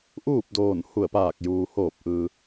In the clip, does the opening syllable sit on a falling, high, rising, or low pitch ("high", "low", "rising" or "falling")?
falling